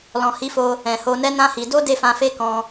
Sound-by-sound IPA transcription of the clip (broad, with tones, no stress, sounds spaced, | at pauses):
l ɔ̃˨ h i˨˦ f o˧ | ɛ̃˨ h o˧ n ɛ˦ n ã˦ h i˧ d o˦ d e˦˨ f ã˧ f e˦ k ɔ̃˧